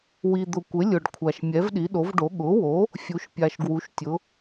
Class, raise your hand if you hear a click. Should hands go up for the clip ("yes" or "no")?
no